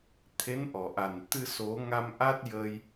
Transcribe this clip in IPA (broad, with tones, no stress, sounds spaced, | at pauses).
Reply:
t̪ʰ e˧˥ n ʔ ɔ˨˩˨ ʔ a˨˩ n t̪ ɨ˧ s o˨˩˦ ŋ a˧ m ʔ a˦˥ t̚ j ə˧ j